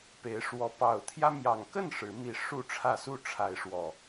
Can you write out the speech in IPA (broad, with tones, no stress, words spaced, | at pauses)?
pe˨˦ɪ̯ʂwɔ˨˦ pɑ˨˩ʊ̯ t̪ʰjä˦mjɑ˨˩ŋ kə˥˨n ʂɻ̩˨˦ mi˨˩ ʂu˥˨ʈ͡ʂʰä˥˨ su˥˨ʈ͡ʂʰa˨˦ɪ̯ ʂwɔ˨˩